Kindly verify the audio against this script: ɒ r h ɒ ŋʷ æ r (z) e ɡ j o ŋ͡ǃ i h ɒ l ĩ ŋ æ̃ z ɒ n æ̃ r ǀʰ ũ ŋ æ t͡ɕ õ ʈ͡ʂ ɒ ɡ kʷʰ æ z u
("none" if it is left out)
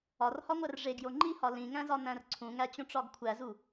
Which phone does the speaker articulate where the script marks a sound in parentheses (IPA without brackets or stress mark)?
ʐ